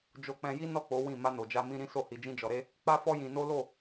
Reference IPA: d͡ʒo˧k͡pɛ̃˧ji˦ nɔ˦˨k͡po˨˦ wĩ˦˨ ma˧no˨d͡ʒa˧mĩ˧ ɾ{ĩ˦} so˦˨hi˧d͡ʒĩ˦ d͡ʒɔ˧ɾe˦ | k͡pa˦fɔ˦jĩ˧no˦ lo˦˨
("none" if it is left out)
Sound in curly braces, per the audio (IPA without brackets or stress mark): ĩ˦